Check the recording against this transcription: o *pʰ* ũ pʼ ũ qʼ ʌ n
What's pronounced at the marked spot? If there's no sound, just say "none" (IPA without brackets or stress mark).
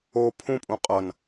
pʰ